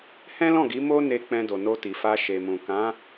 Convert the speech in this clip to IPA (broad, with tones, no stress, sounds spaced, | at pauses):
h ɛ̃˦ l ɔ̃˦˨ ɡ i˨˦ m o˦ n e˧ k͡p ɛ̃˧ d o˨ n o˧ t i˨ f a˧ ʃ e˨ m ũ˨ k ã˨˦